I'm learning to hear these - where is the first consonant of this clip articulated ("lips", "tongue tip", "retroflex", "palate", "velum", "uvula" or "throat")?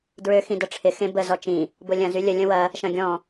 tongue tip